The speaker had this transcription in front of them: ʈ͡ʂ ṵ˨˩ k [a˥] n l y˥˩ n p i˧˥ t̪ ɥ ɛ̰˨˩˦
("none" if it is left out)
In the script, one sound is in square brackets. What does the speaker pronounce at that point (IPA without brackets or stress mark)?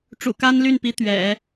a˥